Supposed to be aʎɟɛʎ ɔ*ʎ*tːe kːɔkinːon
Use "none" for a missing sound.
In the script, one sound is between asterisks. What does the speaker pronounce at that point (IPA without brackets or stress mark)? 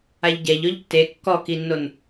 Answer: ʎ